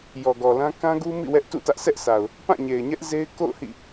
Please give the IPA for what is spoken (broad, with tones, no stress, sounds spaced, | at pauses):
j ɔ˨ ɡ ɔ˨ l ã˦ k ã˦ ɡ u˦ m ḭ˦˨ w ɛ˦ ʔ t ṵ˦˨ t ä˦ ʔ sʰ ɛ˦ ʔ sʰ a˨ ʊ̯ | p ã˦˨ ɲ e˨ ɪ̯ ɲ ɛ˦ ʔ z e˦ ɪ̯ k o̰˦˨ ʊ̯ h ḭ˦˨